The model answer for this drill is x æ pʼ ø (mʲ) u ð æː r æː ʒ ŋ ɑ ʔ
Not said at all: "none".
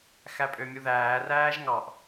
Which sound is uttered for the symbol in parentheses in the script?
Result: mʲ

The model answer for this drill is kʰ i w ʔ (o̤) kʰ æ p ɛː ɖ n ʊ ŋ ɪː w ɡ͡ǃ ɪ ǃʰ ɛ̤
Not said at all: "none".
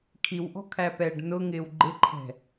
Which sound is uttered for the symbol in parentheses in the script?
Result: ɔ̤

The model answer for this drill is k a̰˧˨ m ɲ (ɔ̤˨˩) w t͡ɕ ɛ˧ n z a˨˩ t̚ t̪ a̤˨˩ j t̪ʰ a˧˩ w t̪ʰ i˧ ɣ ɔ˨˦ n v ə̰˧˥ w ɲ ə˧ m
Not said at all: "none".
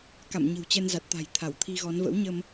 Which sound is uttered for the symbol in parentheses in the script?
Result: ə̤˨˩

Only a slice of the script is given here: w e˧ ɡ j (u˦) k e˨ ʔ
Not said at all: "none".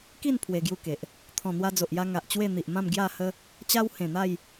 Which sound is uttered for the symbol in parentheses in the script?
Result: u˦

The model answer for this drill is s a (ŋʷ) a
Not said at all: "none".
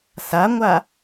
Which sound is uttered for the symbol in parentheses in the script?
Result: ŋʷ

